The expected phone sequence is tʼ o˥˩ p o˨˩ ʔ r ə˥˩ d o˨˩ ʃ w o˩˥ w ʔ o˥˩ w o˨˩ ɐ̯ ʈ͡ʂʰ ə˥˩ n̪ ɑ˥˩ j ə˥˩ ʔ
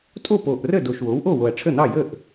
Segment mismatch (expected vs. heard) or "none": none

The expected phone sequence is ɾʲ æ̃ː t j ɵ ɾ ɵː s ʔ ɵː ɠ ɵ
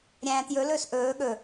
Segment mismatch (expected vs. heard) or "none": ɾ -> l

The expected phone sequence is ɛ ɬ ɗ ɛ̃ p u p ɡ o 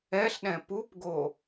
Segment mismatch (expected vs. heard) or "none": none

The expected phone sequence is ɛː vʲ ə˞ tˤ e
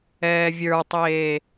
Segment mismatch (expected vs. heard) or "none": e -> eː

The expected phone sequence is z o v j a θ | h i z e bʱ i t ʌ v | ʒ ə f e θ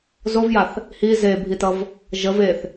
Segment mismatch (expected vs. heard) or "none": f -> v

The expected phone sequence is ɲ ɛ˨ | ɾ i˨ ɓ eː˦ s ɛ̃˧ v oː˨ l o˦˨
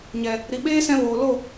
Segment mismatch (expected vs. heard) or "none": none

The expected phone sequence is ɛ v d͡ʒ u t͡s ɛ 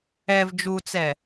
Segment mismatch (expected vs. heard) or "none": none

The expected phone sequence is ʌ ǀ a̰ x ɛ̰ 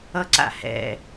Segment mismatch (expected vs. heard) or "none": x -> h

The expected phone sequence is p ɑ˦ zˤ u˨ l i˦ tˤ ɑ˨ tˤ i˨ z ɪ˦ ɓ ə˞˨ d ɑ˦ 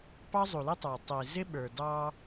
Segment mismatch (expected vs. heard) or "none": none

